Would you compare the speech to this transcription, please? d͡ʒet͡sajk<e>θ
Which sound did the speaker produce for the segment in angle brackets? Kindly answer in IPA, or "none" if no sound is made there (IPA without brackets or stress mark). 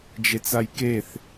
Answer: e